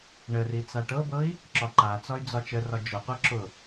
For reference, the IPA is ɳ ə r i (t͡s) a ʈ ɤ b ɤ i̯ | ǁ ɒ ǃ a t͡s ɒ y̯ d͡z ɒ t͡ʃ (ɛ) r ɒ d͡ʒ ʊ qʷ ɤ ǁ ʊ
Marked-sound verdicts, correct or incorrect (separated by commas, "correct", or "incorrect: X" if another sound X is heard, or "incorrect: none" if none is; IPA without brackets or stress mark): correct, incorrect: ə